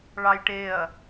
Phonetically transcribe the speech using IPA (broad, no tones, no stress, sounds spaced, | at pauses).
ɭ ɑ j ʈ e ɐ̯